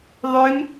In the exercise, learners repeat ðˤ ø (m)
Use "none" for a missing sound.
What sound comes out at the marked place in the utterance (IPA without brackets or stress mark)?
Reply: m